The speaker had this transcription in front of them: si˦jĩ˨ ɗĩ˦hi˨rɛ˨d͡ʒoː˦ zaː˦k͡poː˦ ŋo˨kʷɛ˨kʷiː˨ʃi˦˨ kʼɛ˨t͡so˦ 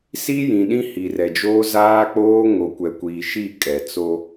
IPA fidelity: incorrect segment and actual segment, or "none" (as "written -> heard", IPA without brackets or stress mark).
none